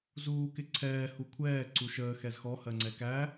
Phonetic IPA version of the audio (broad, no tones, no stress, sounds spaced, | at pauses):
z uː k ɪ ǀʰ ɛː h u kʷʰ ɛː ǀ u ʃ əː x ɛ z x ɔ h ɜ ŋ͡ǀ ɛ k æ